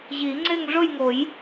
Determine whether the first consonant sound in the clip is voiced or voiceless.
voiced